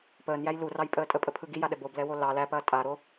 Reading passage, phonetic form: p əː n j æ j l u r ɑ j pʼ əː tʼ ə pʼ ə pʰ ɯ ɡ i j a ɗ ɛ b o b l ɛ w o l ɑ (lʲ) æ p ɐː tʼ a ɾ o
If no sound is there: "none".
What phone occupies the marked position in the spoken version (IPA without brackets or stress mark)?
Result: l